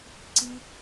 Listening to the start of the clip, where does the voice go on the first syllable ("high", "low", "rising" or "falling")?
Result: high